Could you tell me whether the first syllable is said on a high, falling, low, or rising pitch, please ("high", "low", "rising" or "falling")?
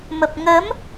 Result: low